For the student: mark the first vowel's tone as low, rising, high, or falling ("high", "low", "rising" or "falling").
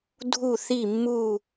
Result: falling